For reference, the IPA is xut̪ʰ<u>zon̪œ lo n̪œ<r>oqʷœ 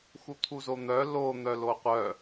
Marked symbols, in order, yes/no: yes, no

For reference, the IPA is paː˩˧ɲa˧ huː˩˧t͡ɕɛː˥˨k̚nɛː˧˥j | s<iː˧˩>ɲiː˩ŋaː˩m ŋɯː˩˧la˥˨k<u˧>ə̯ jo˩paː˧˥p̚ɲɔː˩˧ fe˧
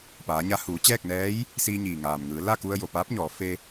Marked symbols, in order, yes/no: no, yes

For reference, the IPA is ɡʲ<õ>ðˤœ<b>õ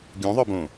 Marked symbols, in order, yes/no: no, yes

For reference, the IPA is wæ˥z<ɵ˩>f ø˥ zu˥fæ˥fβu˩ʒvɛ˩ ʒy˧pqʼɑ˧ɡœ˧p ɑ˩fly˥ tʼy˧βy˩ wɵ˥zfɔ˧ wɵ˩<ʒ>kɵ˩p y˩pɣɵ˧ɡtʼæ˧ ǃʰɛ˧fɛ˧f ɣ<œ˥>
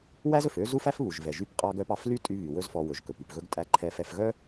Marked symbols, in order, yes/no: yes, yes, yes

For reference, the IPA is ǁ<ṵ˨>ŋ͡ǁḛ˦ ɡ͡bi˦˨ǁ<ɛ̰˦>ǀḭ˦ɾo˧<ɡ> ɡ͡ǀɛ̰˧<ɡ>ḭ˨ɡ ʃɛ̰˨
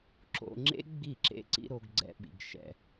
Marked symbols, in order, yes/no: no, no, yes, no

